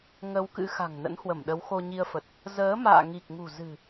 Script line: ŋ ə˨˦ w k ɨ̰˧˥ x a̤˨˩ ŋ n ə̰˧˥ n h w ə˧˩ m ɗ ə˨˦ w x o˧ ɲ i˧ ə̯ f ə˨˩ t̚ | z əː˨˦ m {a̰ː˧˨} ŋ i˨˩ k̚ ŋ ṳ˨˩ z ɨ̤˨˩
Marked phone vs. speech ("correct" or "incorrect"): correct